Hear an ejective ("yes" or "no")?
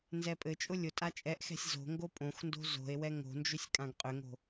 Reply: yes